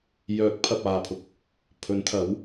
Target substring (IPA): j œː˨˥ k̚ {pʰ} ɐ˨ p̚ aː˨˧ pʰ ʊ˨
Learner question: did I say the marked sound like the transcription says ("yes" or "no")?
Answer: yes